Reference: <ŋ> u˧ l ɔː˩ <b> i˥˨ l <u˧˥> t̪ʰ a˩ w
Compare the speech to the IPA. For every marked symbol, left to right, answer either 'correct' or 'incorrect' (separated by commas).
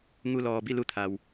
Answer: correct, correct, incorrect